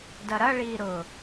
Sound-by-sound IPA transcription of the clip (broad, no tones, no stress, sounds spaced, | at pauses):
d ɐ ɾ ɐ ɭ iː ɾ ʊː